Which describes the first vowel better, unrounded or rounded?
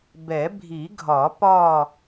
unrounded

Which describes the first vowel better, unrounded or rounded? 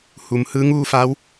rounded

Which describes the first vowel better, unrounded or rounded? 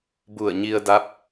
rounded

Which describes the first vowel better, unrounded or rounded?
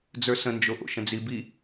unrounded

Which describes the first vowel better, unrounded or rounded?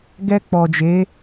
unrounded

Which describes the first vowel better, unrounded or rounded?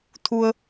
rounded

